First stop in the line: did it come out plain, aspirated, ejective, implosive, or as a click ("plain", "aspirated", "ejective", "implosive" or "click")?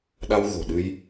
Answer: implosive